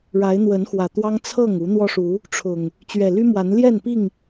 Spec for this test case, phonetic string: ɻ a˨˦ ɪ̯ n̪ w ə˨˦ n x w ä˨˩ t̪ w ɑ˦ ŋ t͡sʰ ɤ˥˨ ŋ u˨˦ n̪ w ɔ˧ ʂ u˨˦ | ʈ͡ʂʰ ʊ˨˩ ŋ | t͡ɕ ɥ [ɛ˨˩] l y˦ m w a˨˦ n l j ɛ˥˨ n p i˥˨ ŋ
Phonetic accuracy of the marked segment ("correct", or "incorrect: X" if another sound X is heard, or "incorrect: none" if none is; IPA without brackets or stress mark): correct